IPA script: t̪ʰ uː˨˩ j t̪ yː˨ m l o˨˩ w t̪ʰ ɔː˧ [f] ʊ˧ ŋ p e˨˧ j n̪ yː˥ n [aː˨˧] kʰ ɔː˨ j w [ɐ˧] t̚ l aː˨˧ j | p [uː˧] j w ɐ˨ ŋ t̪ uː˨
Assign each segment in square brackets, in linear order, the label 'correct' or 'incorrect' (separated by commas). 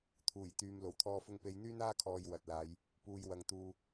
correct, incorrect, incorrect, incorrect